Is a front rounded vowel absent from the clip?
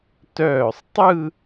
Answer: no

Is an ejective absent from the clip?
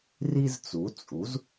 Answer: no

